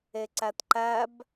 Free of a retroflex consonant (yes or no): yes